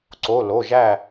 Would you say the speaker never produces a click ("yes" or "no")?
no